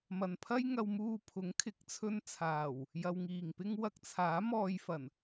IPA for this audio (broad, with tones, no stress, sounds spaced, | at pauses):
m ɐ˨ n pʰ ɐ˥ j ŋ ɐ˧ w m uː˧ pʰ ʊ˨˥ ŋ kʰ ɪ˨˥ k̚ t͡sʰ ɵ˧ n t͡sʰ aː˨˩ w | j ɐ˧ w ŋ iː˨ ŋ p ɪ˥ ŋ w ɐ˧ k̚ t͡sʰ aː˨˥ m ɔː˨ j f ɐ˨˩ n